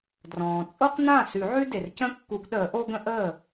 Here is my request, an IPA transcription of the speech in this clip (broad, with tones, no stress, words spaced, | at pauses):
drɔ̃ː˩ t͡sʼo˥qnã˥˩ sʉ˨˩˦ʕʉ˥ de˩rcə̃˥ kːu˨˩˦ɡɗəː˨˩˦ʔo˥ ɡə̃˥ʔəː˥˩